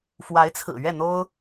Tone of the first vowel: rising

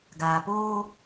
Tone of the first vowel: low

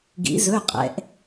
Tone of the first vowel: rising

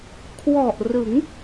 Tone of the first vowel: low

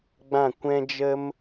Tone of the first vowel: falling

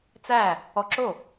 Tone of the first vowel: falling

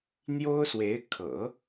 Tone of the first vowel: high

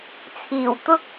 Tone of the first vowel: low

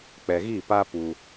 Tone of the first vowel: low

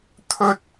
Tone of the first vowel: high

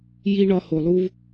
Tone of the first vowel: high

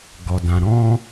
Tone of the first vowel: low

